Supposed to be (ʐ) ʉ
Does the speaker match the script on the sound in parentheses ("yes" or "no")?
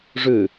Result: yes